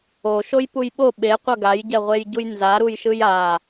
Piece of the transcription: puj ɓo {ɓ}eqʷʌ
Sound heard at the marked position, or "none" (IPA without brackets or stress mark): ɓ